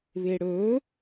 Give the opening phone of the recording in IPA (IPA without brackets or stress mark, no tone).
β